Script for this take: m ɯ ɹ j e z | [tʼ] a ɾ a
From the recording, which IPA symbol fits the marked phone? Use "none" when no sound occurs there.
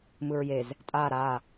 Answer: tʼ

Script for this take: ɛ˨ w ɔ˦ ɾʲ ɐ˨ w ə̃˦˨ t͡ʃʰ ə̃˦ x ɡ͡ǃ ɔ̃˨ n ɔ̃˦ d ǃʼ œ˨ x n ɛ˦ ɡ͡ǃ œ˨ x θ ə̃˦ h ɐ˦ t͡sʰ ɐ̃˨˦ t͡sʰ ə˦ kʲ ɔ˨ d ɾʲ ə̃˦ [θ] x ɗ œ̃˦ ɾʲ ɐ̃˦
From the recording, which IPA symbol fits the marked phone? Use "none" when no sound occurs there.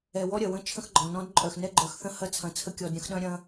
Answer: none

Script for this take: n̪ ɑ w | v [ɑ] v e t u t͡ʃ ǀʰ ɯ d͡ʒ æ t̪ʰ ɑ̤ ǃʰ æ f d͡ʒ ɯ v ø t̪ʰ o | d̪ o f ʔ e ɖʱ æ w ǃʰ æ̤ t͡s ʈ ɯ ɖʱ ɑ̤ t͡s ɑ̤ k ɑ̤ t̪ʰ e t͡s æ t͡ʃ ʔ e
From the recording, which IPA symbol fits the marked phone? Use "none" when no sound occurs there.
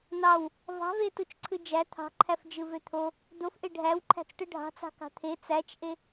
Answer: ɑ̤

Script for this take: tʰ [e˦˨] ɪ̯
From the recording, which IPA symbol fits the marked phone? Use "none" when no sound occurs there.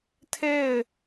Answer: e˦˨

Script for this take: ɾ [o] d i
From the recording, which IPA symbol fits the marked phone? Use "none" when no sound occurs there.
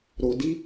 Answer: o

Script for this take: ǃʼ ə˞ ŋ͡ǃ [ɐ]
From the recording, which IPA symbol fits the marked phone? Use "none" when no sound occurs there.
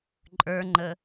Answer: ə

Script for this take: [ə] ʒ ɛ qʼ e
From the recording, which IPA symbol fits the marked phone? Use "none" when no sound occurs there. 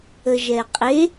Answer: ə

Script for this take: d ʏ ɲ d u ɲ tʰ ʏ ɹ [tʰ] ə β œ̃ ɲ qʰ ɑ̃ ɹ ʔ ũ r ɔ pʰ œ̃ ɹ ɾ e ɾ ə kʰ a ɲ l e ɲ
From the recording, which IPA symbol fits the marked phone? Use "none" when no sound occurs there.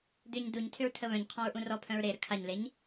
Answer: tʰ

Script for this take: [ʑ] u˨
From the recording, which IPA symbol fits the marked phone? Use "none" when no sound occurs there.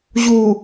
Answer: ʑ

